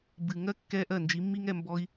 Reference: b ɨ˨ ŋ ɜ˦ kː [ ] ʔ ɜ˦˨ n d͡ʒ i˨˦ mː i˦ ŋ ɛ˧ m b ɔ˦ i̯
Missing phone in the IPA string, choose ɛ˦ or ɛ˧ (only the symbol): ɛ˧